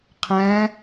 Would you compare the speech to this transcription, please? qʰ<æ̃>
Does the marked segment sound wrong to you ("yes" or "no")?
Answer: no